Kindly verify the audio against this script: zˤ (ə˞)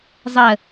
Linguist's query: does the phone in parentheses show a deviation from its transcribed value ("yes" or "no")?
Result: yes